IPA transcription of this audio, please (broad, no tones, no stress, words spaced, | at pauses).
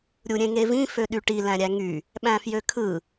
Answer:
ɾʲuɾʲẽŋevĩ føɗyʈi læ̃ɾʲæŋy | ɓæ̃fjøkʰɯ